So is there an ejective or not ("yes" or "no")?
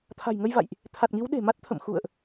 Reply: no